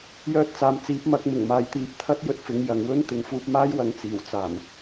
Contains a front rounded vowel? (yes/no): yes